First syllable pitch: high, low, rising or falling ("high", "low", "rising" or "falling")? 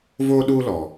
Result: high